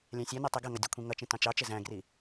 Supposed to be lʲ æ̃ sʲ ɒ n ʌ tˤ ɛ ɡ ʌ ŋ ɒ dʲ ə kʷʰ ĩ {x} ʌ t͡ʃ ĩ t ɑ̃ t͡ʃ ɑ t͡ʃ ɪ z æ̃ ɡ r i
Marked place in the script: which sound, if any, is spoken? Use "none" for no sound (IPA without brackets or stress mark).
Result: ŋ